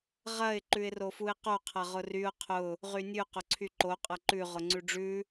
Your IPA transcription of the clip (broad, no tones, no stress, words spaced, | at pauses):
ʁɐɪ̯ ǃʉɪ̯rofuɪ̯qo qʰɐʁʊryʊ̯ qʰʊ | ʁynʲʉ qʊǀʰyǃo qʼɐǃʉ ʁʊŋ͡ǀʉɖ͡ʐʉ